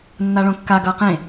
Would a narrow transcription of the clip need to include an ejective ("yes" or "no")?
no